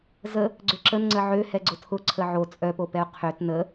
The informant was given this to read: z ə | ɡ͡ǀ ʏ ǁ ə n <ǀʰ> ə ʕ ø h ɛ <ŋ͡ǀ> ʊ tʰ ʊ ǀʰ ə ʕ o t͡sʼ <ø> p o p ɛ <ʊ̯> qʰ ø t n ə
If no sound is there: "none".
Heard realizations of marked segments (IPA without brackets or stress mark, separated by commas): ŋ͡ǀ, ɡ͡ǀ, œ, ʊ̯